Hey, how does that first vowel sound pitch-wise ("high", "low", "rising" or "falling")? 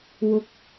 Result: high